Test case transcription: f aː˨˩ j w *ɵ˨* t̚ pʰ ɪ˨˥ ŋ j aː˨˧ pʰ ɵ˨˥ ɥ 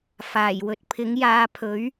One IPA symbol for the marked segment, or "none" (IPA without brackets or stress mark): ɵ˨